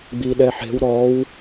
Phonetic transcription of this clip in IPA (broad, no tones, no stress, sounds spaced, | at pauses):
ɡ͡b i ɗ ɛ ħ e̤ w ɾ ɔ w